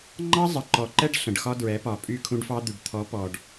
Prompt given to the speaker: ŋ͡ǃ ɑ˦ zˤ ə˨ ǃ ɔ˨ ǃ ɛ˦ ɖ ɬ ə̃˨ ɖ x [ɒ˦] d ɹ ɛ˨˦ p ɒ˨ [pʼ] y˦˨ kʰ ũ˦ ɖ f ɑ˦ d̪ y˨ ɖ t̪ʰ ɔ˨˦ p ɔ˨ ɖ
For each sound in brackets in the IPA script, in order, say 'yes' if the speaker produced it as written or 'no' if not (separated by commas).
yes, yes